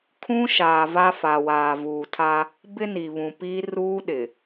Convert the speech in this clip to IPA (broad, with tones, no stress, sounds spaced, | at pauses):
kʰ ũ˦ ʃ aː˨ v a˦ f a˨ w aː˨ v uː˨ tʰ a˦ | b ɪ˦ n i˨ β ũ˨ p iː˦ r uː˦ ɗ ɪ˨